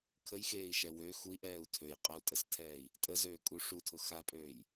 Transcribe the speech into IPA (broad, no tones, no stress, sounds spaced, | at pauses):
kʰ ə j x eː i̯ ʃ ɛ w ø x u i̯ ʔ ɛː u̯ tʰ ø j qʼ ə u̯ tʼ ə s tʰ ɛː i̯ | tʼ ə z øː kʼ u ʂ u tʰ ʊ x a pʼ øː j